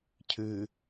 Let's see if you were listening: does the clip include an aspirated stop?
yes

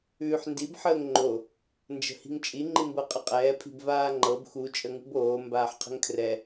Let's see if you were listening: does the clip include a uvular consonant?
yes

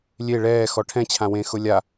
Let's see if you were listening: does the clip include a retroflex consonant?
yes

